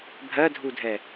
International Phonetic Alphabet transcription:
bʱ ɜ dʱ u dʱ ɛ

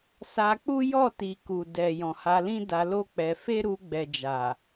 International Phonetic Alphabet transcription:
s a˧ k͡p u˦ j ɔ˦˨ t i˨ k u˨ d ɛ˨ j ɔ̃˨ h a˧ l ĩ˦ d a˧ l o˦ k͡p ɛ˧ f e˦ ɾ u˧ ɡ͡b ɛ˨ d͡ʒ a˨

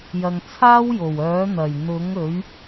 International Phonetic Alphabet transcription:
j ɐ˨ ŋ t͡sʰ aː˥ w j o˨˩ w œː˨˥ n̪ ɐ˨˩ j n̪ ʊ˨˥ ŋ ɵ˨˥ ɥ

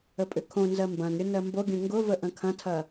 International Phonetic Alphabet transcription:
ə pʼ ʏ kʰ õ n z ɜ m b ɐ̃ n ɾʲ ʊ n ɜ m b o ɡʲ ə̃ ŋ ɡ ʊ v ə ʔ ə̃ kʰ ɐ̃ tʰ ɐ

